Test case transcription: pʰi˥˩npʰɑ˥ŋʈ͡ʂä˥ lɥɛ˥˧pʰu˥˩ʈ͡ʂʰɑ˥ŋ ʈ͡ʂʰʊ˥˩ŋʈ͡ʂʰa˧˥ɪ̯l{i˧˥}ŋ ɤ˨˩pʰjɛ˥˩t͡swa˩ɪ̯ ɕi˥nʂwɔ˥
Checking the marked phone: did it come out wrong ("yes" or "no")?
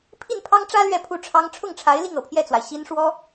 yes